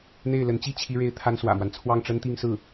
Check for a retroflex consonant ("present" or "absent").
present